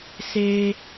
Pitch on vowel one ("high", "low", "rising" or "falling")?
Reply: high